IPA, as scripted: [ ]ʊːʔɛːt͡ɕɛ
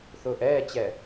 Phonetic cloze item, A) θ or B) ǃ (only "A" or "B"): A